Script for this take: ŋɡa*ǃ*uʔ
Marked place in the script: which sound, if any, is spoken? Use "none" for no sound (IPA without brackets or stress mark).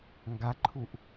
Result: ǃʰ